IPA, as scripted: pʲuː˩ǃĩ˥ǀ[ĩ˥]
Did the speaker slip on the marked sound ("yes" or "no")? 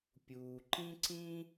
no